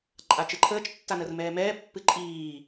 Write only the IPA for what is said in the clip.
ǃʼat͡ʃɨǃʰəːt͡ʃ tːanəːrmɛːmɛː pːɨǃʼiː

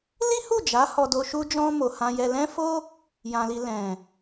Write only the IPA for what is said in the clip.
li˦hu˦˨d͡ʒa˨˦ hɔ˧do˧ʃu˦d͡ʒɔ̃˦ mo˧hã˦jɛ˦ lɛ̃˦fo˦ | jã˧li˧ lɛ̃˨

